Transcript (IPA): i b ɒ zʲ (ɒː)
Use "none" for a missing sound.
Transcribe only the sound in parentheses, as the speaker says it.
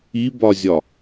ɒ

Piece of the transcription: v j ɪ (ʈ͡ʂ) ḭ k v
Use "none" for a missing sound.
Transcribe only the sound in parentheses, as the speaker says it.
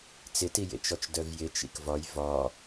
t͡ʃ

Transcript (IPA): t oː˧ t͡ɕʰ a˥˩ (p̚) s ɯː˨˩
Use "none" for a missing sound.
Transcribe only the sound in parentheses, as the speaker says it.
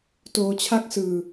k̚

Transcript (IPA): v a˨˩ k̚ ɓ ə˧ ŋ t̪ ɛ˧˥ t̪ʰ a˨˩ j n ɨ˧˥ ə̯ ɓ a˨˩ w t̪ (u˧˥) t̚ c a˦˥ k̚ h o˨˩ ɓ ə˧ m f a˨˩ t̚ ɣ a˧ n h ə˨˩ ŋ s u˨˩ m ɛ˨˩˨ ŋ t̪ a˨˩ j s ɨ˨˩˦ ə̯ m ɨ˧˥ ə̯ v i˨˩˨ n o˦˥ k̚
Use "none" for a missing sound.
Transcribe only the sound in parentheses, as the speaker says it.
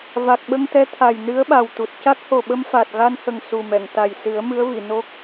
u˨˩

